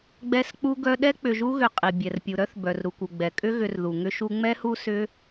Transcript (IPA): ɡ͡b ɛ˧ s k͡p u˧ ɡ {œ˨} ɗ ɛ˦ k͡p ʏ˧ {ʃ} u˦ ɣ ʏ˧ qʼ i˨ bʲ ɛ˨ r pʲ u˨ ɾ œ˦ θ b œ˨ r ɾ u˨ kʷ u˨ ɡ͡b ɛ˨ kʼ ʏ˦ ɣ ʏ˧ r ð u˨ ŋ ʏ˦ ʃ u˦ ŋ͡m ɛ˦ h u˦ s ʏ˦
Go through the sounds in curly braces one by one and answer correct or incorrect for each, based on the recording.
incorrect: œ˧, incorrect: ʒ

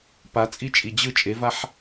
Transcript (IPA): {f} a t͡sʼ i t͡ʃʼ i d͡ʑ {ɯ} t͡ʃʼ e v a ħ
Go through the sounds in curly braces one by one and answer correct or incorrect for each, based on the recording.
incorrect: p, correct

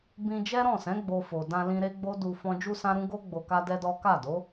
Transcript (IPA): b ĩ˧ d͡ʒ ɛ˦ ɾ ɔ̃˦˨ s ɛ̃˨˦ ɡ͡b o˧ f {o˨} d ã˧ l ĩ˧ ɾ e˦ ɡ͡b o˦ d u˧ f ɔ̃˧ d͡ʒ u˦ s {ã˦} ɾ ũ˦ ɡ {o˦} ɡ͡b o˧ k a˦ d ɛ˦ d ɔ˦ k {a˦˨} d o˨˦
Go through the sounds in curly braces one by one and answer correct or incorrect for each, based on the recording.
correct, correct, correct, correct

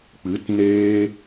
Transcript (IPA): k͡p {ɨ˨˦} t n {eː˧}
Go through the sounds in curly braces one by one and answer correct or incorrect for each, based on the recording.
correct, correct

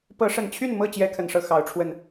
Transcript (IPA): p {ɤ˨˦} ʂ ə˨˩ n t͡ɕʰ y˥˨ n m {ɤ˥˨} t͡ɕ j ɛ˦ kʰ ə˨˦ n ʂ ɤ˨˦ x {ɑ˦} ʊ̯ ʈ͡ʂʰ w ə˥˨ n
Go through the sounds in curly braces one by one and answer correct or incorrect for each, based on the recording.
correct, correct, incorrect: ɑ˨˦

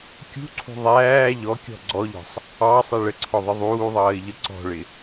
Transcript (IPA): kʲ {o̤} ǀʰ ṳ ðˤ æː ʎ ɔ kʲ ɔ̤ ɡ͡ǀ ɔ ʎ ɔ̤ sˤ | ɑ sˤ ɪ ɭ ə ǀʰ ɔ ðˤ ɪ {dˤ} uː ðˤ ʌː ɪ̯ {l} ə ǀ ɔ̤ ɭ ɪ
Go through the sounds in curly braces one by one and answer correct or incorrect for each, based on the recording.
incorrect: ṳ, incorrect: ðˤ, incorrect: ʎ

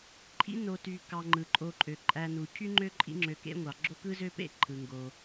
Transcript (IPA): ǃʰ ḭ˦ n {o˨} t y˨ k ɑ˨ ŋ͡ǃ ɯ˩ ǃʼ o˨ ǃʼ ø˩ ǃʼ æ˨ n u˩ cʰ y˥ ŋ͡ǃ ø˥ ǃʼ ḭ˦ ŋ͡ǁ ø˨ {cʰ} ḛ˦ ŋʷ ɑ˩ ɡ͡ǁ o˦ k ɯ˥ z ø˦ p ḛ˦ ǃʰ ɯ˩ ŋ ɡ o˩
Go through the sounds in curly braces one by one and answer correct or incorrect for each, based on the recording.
correct, incorrect: k

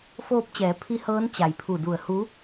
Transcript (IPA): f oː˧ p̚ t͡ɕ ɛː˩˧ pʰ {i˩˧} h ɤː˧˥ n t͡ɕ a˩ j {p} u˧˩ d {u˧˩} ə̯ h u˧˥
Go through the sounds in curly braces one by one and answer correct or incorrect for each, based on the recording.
incorrect: i˧˥, incorrect: pʰ, correct

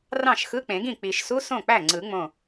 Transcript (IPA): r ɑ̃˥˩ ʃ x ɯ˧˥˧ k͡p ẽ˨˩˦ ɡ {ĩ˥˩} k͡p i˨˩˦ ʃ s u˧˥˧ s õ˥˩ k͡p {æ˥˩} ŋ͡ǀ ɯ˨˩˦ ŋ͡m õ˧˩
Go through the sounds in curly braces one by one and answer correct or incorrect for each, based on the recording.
correct, correct

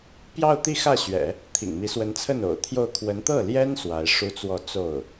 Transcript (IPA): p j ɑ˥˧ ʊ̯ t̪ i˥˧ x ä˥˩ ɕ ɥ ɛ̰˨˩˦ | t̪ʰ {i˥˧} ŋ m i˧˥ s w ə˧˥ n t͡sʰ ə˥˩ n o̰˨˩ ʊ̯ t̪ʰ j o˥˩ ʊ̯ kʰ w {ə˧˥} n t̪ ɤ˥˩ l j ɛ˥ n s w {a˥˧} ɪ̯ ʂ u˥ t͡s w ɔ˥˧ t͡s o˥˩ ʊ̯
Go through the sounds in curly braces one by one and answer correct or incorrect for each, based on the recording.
incorrect: ḭ˨˩, correct, incorrect: a˧˥

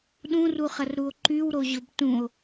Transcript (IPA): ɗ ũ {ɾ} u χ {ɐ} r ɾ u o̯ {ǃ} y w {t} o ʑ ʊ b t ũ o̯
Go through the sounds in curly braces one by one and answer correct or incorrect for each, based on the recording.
incorrect: r, correct, correct, incorrect: ɾ

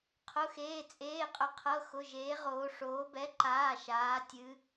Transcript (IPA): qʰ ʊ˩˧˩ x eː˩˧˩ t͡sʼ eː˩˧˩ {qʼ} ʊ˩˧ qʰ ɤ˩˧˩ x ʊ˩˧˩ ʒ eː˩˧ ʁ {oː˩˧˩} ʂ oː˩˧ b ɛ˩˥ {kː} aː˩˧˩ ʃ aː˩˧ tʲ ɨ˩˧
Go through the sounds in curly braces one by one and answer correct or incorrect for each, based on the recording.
correct, incorrect: oː˩˧, incorrect: ǃ

